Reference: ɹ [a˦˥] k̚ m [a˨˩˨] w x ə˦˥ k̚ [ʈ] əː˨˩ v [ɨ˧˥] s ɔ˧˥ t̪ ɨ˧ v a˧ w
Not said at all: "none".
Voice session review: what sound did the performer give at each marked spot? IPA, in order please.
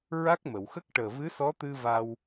a˦˥, ə˨˩˨, ʈ, ɨ˧˥

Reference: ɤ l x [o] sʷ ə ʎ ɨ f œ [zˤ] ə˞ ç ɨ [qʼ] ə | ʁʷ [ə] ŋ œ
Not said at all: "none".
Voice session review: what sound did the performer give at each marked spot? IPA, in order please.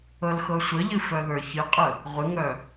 ɤ, ð, qʼ, ɨ

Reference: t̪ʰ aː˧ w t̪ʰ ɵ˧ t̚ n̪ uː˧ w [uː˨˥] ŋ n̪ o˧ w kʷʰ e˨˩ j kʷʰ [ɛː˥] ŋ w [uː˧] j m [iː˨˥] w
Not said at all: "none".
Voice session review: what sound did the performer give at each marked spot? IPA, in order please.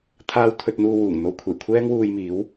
uː˨˩, ɛː˥, uː˧, iː˨˥

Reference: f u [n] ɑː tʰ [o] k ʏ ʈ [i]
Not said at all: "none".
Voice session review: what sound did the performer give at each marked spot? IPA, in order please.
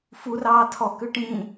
r, ɔ, ĩ

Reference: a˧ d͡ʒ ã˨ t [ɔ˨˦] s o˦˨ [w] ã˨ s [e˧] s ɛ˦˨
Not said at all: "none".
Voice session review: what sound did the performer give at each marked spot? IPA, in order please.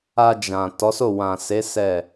ɔ˨˦, w, e˨˦

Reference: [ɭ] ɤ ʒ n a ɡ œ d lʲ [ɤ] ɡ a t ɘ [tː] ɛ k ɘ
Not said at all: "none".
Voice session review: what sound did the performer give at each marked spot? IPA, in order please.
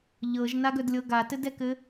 ʎ, ɤ, d

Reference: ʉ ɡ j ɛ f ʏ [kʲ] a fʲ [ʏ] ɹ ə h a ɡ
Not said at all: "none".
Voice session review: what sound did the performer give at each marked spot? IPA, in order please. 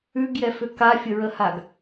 k, ə

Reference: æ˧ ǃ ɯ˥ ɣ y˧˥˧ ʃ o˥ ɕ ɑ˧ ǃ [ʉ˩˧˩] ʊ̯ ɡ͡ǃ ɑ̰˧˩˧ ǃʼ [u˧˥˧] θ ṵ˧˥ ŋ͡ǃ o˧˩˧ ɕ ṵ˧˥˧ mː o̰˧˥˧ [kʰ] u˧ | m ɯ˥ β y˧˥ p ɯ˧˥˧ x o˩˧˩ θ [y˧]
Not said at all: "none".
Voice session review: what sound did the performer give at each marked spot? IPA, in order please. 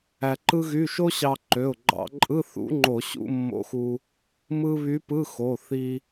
ø˩˧˩, ɯ˧˥˧, x, i˧

